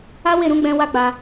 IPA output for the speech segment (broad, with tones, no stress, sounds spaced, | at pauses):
a˦ w e˦˨ ɾ ũ˨˦ ɡ͡b ɛ̃˧ w a˦ ɡ͡b a˧